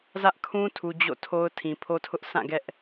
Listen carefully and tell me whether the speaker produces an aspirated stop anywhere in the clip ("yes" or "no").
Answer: yes